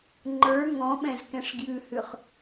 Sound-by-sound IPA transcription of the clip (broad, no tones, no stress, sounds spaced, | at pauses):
ŋ͡ǃ ə˞ ŋ ɔ̃ ɓ ɛ̃ z k ɛ̃ ʂ ɡ j ʉ h ʉ χ